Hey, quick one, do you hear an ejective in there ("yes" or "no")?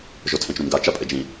yes